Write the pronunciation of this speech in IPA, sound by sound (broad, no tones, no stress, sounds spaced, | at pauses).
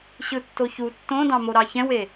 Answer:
ɕ ɯ tː o ç u tː õ d ɑ̃ m o ɾ ɑ ç ɛ̃ w e